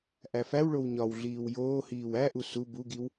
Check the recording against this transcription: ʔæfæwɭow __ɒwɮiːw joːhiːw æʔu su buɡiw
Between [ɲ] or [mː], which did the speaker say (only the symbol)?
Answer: ɲ